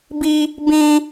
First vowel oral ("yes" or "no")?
yes